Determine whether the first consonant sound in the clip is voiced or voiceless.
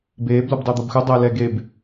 voiced